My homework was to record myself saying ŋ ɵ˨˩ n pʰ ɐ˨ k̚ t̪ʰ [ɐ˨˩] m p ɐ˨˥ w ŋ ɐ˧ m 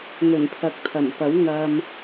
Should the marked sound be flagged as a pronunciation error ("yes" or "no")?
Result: no